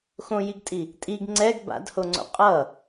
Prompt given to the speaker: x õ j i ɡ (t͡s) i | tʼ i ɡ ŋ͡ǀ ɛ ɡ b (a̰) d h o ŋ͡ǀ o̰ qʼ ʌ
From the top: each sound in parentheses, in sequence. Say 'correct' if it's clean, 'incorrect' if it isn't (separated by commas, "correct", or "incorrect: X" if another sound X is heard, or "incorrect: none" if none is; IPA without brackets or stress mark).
incorrect: tʼ, correct